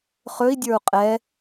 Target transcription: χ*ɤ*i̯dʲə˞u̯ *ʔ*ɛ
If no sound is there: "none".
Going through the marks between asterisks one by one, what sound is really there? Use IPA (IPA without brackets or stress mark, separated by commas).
ɵ, qʼ